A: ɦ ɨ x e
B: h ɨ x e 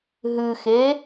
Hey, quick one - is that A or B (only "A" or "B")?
A